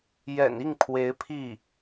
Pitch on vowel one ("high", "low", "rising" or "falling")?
low